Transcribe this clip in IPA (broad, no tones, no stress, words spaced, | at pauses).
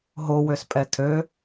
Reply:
ɦowøspʼɛ tʰø